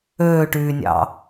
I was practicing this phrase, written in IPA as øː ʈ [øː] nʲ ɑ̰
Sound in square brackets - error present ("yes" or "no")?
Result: yes